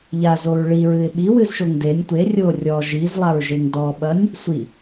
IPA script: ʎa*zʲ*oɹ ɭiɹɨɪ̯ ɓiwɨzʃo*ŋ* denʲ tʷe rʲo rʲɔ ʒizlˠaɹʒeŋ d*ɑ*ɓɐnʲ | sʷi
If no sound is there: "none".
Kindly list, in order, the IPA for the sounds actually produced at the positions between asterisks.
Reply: z, ŋ, ɔ

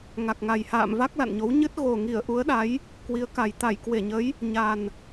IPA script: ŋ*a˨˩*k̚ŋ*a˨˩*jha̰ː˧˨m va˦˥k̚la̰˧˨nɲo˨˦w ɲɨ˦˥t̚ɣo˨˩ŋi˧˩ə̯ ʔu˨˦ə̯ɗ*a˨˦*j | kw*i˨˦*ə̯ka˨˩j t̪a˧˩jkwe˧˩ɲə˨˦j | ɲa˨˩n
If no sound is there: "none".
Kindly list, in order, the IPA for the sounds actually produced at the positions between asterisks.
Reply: a˨˩, a˨˩, a˨˦, i˨˦

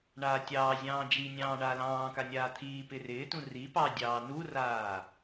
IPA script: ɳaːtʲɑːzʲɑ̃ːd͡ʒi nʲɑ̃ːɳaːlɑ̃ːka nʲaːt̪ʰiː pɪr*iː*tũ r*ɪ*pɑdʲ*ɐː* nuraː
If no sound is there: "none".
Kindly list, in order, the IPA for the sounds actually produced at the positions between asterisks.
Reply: ɪː, i, ɑː

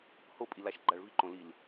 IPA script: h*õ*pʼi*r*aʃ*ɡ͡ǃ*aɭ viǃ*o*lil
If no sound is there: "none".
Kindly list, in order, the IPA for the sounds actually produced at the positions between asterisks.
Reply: o, l, ɡ͡ǃ, õ

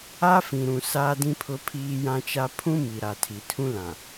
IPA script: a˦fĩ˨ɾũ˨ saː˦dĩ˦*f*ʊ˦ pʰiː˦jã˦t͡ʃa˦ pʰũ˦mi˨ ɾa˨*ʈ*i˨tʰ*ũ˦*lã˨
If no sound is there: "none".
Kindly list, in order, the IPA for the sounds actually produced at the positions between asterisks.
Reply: pʰ, tʰ, ũ˦

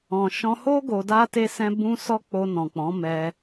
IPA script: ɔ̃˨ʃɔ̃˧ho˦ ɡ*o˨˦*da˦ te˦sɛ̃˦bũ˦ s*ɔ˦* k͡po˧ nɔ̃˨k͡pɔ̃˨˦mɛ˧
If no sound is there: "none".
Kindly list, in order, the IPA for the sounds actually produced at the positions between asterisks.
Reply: o˧, ɔ˦

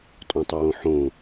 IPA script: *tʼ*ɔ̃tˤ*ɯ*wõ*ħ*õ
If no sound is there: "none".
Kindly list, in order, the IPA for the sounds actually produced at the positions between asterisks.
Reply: tʼ, ə, ħ

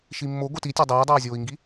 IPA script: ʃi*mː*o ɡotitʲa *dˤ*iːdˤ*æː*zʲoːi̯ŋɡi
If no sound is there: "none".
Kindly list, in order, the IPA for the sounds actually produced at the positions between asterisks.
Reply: mː, dˤ, ɛː

